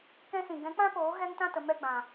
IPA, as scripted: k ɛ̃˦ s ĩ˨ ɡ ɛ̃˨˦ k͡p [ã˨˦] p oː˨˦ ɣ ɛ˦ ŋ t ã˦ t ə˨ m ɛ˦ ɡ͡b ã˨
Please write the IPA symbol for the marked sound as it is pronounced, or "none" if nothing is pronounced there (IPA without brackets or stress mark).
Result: ã˦